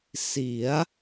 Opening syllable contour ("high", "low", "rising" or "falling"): rising